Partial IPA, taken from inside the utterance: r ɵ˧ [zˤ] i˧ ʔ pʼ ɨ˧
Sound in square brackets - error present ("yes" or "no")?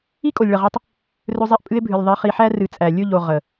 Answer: no